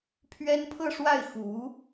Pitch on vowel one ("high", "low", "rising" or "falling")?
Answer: high